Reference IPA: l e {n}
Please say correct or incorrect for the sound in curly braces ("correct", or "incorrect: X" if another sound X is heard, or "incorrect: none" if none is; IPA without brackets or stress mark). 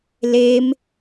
incorrect: m